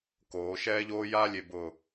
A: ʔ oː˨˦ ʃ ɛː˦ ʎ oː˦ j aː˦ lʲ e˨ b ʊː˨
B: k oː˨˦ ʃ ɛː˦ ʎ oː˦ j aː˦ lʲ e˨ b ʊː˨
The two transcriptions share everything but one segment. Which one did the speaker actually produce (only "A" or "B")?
B